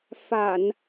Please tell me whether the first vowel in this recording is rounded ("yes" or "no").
no